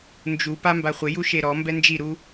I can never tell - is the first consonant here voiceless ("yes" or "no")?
no